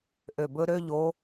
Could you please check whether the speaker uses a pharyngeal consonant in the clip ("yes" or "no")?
no